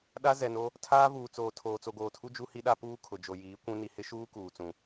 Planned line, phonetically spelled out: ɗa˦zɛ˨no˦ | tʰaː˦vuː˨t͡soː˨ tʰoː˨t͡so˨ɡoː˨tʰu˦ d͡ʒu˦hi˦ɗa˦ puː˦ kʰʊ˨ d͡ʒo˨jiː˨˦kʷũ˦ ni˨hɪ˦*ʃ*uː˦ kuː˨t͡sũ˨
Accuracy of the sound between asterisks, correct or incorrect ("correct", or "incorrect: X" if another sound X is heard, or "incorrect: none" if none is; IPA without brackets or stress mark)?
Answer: correct